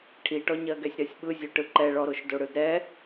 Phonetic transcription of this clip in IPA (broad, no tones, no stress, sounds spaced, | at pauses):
ʈʰ i ʈ ɔ ɲ ɜ ɡ ɛ sʲ ɾ ɜ sʲ ɓ ɯ zʲ o ʈ ɯ ǃ ɛ ɭ ɔ ɾ o ʃ d o ɽ ɯ d ɾ ɛ